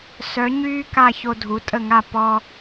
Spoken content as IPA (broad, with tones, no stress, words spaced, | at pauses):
sœ˩˥ ɲyː˥ka˥˩ ço˧dʱu˩˥tʼə˥˩ŋa˥˩ pɔ˧